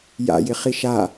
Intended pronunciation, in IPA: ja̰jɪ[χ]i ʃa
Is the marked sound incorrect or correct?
correct